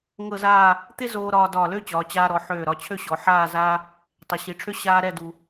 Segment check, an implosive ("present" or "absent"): absent